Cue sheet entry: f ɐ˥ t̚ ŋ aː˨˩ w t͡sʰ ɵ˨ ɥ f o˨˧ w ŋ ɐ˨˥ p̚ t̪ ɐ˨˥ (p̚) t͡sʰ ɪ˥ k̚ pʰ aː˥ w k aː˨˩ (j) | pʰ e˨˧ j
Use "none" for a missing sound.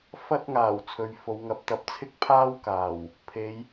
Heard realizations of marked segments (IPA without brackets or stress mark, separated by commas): p̚, w